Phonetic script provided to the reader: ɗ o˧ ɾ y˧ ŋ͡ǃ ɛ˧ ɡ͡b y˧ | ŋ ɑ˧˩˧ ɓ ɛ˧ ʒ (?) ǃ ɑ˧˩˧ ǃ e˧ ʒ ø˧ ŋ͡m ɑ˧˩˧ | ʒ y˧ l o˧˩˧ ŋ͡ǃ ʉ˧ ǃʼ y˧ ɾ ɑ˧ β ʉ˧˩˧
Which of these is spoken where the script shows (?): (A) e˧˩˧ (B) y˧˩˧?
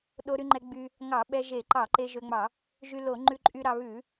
A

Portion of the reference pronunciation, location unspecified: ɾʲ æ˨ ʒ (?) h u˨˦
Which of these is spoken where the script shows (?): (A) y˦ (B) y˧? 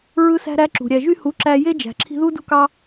B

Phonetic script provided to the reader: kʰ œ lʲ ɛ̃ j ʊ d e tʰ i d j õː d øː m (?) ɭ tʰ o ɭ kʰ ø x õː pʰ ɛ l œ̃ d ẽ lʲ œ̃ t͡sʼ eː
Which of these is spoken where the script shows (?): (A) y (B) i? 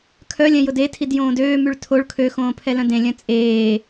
A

